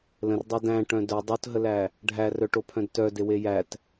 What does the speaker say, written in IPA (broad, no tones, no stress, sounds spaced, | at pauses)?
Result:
l ə̃ r dˤ a d æ̃ ʈ œ̃ d œ dˤ o t ɦ ə l æ | ɖʱ æ r œ ʈ o pʰ œ̃ d t œ d e w e j æ t